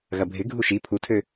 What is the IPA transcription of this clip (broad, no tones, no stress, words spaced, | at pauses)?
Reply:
ɣɐbʱɪ ɡʱuʃi pʰutʰø